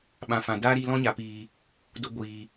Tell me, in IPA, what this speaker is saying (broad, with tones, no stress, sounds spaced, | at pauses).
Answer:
ɓ ã˨ f ã˨ d aː˦ ɾ iː˧ l ɔ̃˧ ɲ a˨ p iː˨ | d o˧ ɡʷ iː˨